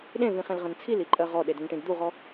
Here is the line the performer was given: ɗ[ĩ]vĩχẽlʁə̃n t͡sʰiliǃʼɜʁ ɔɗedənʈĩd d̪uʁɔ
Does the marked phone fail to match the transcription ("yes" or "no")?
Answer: yes